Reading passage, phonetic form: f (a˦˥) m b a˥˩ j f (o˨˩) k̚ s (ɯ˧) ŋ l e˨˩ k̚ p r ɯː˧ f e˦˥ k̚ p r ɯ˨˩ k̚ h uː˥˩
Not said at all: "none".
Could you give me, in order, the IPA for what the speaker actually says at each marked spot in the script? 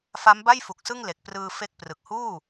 a˦˥, u˨˩, ɯ˥˩

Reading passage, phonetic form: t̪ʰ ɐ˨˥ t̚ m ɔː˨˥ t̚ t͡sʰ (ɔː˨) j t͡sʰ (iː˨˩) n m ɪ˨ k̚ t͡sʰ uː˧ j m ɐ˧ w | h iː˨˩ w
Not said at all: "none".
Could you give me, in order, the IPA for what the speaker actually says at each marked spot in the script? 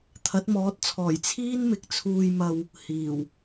ɔː˨˩, iː˥

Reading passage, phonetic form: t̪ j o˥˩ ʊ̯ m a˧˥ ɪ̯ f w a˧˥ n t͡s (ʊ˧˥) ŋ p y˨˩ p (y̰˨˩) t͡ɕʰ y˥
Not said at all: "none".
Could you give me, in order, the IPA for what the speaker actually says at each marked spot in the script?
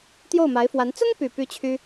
ʊ˥, y˥

